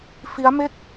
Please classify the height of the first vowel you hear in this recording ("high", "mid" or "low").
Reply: high